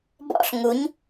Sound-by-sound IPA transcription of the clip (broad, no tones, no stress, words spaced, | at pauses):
bɔ̰ɬ ŋuɲ